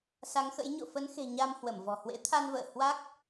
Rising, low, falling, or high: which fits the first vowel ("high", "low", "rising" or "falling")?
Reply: rising